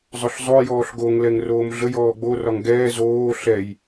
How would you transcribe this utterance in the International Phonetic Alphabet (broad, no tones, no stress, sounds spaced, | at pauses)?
zˤ ʊ ɬ zˤ o j ɔː ɬ ɡ o ŋ l ɛ ŋ r oː m ɮ ə j ɔː ɡ͡b o r ɒ ŋ ɡ ɛː z oː ɬ ɛ j